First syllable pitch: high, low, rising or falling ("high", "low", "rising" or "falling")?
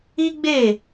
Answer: high